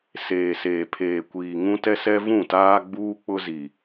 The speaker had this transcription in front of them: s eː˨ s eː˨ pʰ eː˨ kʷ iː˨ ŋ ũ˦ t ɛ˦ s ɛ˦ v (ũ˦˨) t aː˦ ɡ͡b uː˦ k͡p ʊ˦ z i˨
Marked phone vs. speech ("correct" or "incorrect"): correct